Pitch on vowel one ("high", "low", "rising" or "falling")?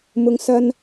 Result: low